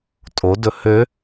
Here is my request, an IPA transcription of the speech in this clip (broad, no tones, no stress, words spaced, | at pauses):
tʼodɵ hø